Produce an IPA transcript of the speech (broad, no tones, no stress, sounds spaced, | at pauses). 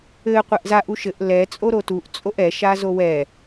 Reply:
ɘ qʷ ɛ ʔ z a ʔ u ʃ ɘ ʔ l ɛ t͡sʼ o ɾ o t u ʔ t͡sʼ o ʔ ɛ ʃ a z o w ɛ